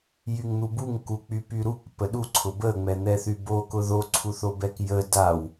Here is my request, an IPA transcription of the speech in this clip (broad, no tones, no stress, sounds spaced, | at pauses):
j y ŋ n̪ u b u ŋ k u k͡p y p y ɾ u k p ə ɗ u ǀʰ ʊ b ə ŋ͡m ɛ n̪ ɛ θ y b o k ʊ ð o ǀʰ u θ o b ɛ k j ə d a w